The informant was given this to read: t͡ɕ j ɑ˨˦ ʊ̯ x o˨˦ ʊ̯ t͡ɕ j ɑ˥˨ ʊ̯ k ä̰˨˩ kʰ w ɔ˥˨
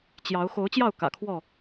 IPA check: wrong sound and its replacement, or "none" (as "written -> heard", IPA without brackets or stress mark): none